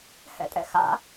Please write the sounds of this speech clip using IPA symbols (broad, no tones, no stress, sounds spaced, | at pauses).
h ɛ̰ tʼ ɛ̰ x a̰